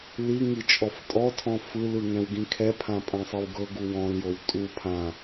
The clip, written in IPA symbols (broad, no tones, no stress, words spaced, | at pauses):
li ŋit͡ʃʼɔftʼɔtʰɔ̃ fɯlɯ ŋɛ̃wɡĩkʰɛpʰã pʼãsˤɤwɡɤɡu wɔ̃ljow tʼu pʰã